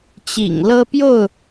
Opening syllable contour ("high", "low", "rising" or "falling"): low